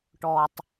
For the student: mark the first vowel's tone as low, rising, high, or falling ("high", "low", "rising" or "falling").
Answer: low